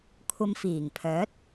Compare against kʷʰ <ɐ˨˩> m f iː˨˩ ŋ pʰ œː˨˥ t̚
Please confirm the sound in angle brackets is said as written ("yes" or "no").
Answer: no